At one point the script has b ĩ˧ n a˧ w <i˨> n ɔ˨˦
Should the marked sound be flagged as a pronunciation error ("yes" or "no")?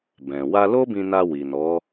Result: no